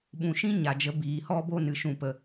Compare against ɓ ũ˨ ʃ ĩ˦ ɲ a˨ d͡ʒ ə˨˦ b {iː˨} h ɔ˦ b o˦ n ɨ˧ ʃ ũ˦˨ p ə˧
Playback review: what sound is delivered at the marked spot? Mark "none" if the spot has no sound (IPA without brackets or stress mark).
iː˨